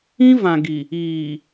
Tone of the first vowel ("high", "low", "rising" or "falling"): high